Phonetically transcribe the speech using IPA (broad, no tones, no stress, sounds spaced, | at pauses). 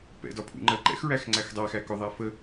p ɛ̰ d ɒ pʰ ṵ ŋ͡ǃ ɜ ǃ ɛ̰ x ɹ æ x ŋ͡ǀ æ x dˤ æ x æ k ʊ ðˤ æ f ə